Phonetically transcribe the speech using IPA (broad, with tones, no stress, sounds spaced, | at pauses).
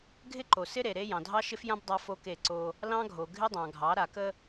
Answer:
ɡʱ ɪ˦ ǃ o˨ s ɪ˦ ɾ e˨ ɾ e˦ j ɑ̃˨ dʱ ɑ˦ ʃ ɪ˦ f j ã˦ b dˤ a˦ f o˦ k e˦˨ ǀ o˦ | l ɑ̃˦ ɡʱ o˨ ɡʱ ɪ˦ dˤ ɑ̃˨ ɡʱ ɑ˨˦ ɾ a˨ k ə˦